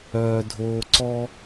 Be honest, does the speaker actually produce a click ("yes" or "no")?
yes